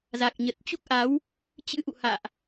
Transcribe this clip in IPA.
za˨˩k̚ɲə˨˩t̚t͡ɕu˦˥k̚ʔa˨˦w | t͡ɕɨ̰˧˥ʔṵ˧˨ha̰ː˧˨ʔ

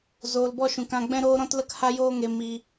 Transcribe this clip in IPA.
zoː˨lbɔ˧ʃũ˨kã˧ ɡ͡bɛ̃˦ɾoː˦ ɾɔ̃˦tlə˦kha˦joː˦ ŋe˦mi˦

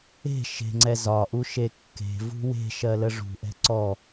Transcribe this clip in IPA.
e̤ ʃe̤ŋ͡ǀɛ zɒʔu ʃekːe̤vṳ we̤ʃɜ ləʐṳʔɛ̤ ǀɔ

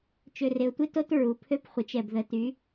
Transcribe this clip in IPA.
t͡ʃø˩rɪ˩ʊ̯tʷɪ˧to˧t ɹu˩pʰø˧pχʷɪ˩˧t͡ʃɛ˩b ðə˩˧ty˩˧

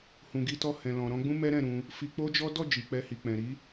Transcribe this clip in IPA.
hũ˨ɡi˧tɔ˧ hɛ̃˨lɔ̃˨ ɾɔ̃˧ɡ͡bũ˦ mɛ˦ ɾɛ̃˦˨ɾũ˧ | fi˧k͡po˦d͡ʒɔ˦ dɔ˦˨ d͡ʒi˨k͡pɛ˧hi˨ k͡pɛ̃˨ ɾi˨˦

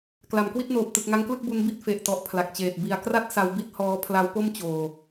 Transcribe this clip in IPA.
kla˩˦mkwi˥˩t̚noː˨˩p̚ tɯ˨˩k̚ŋa˦˥ŋklɯ˥˩k̚ bu˦˥n bi˥˩t̚ fe˨˩ʔtɔ˨˩ʔ pʰla˨˩k̚t͡ɕeː˨˩t̚ bi˨˩a̯kra˥˩t̚ sa˧wbi˥˩t̚ hɔː˦˥ pʰla˦˥wpo˥˩mt͡ɕoː˨˩

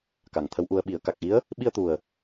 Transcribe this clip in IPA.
ka˨˩ŋt̪ʰə˧˥wʔu˧ə̯ ɓi˨˩˦ə̯ka˨˩k̚ʔi˧˥ə̯ | ɓi˧ə̯t̪u˨˩ə̯

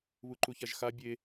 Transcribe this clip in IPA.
βuǃuçaʒxa bʲe

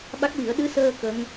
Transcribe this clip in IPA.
ɓa˦˥k̚wi˨˩˦ə̯ ɗɨ˧˥səː˧ kə˧˥ŋ

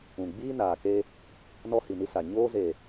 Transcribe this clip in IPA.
ũ˨ ɡ͡biː˦naː˨ke˦ | nɔ˦hi˨ni˦sa˨ ɲoː˦ze˨

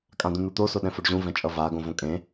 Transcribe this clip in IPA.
kʼãd̪ũn̪ut̪o soɗɛ̃foɖʑũ vɛ̃t͡ʃʼʌva ɡõvõkʼẽ

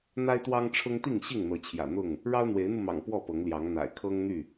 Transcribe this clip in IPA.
n̪a˦ɪ̯t̪wɑ˦ŋʈ͡ʂʰʊ˦ŋt̪i˥˨ŋ ɕi˥˨ŋn̪ɤ˨˦t͡ɕʰjä̰˨˩ n̪ʊ˥˨ŋ | ɻɑ˦ʊ̯n̪we˨˦ɪ̯n̪u˧mɑ̰˨˩ŋ pwɔ˥˨pɤ˨˦ŋljɑ˨˦ŋ n̪a̰˨˩ɪ̯kʰɤ˦ŋn̪y˥˨

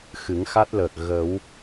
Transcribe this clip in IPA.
xɨ˨˩˦ŋxa˦˥t̚ləː˨˩k̚ ɣə˨˩˦w

